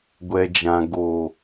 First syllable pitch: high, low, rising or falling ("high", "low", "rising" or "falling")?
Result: low